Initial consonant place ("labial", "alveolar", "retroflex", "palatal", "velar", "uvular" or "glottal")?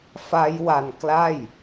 labial